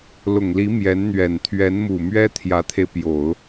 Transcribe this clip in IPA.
l ʊ˨˩ ŋ l i˧˥ m j ɛ˧˥ n n̪ ɥ ɛ˨˩ n t̪ʰ ɥ ɛ˧˥ n m u˨˩ m ɥ ɛ˥ t̪ʰ j ä˧˥ t̪ʰ e˧ ɪ̯ p j o˨˩˦ ʊ̯

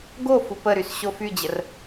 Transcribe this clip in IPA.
ɡ o f u p ə ɾ y s ɕ o f y d͡ʑ ə r

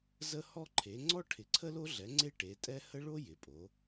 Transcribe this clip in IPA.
z ə˥ h ɔ˥ ǃʰ e˨˥ ŋ͡ǀ ɔ˥ ʈʰ ɪ˨˥ ǀʰ ə˥ l o˥ ɮ ɛ˨˥ ŋ͡ǀ e˥ ʈ e˨˥ tʼ ɛ˥ h ə˥ ɭ o˥ j ɪ˨˥ pʼ o˨˥

